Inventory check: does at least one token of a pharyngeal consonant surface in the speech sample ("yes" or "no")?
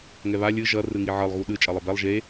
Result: yes